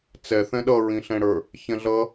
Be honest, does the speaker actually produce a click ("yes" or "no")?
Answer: no